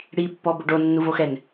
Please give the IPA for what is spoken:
ɽ i pː ɔ b ʊ ɖ o nː u v o x ɛ n

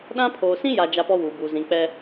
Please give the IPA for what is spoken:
ɗ ã˦ pʰ oː˨ s ĩ˦ j a˨ d͡ʒ a˦ p ɔ˦ w uː˨ b uː˨ z ĩ˨ k͡p ɛ˦

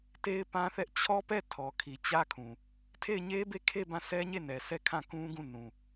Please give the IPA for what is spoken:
t e˦ ɪ̯ p ã˦ θ ɛ˦ ʔ t͡ɕʰ ɔ˦ p ɛ˦˨ tʰ ɔ˨ kʰ i˨ t͡ɕ ä˦ kʰ ũ˨ | tʰ e˦˨ ɪ̯ ɲ e˦ b e˦˨ kʰ e˦˨ b ã˦˨ s ɛ˦ ɲ e˦˨ n ɛ˨ s ɛ˦˨ kʰ ã˦˨ k ũ˦ ɡ ũ˦˨ n ũ˨

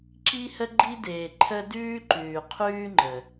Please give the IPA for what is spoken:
ǁ i˦ h ə˦ ɡ͡ǃ i˦ d eː˨ ǃʰ ə˦ d ʉː˦ ǃ ʉː˨ qʰ ʉː˦ ŋ͡ǃ ə˨

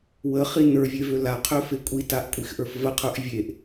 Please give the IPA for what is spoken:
w ə χ i n ə˞ vʲ e v ø l a qʰ ø f e kʷʼ i t a ʔ kʷʼ i x ʔ ə˞ f v ə qʰ ə˞ ʔ vʲ e ʔ

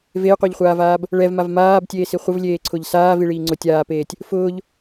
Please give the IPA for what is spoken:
v e j qʷ e ʎ χʷ aː v aː b | ɭ ɛ v m a v m aː b tʲ eː s i χʷ ə v lʲ eː ǀʰ ʊ ʎ s aː v i ɭ iː ŋ͡ǀ ʊ tʲ aː p eː tʲ | f ʊː ʎ

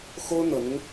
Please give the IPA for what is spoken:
x o˥ ʊ̯ n̪ ɤ˨˩ n̪ ʊ˦ ŋ

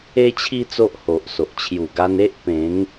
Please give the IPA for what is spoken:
e˦ t͡ɕʰ i˦ t͡s o˦ ʔ h o˨ ʔ s o˨ ʔ t͡ɕʰ j u˨˩ ɡ a˧ n e˦ ʔ p ẽ˨˦ ŋ

